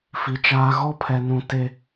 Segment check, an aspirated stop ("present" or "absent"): present